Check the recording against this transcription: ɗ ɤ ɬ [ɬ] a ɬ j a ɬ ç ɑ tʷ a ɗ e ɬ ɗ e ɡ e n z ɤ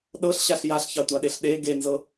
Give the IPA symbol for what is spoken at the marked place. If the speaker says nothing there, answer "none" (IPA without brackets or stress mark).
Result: ɕ